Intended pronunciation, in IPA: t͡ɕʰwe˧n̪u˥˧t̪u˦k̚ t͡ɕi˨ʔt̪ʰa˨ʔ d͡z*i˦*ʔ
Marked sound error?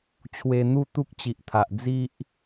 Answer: no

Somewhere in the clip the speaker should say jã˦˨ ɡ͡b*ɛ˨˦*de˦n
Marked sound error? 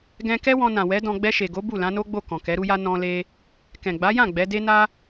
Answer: no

